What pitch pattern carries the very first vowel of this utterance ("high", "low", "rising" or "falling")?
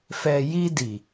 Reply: low